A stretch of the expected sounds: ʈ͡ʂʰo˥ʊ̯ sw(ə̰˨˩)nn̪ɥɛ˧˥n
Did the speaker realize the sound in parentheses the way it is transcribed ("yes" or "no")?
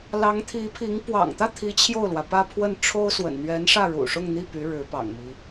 yes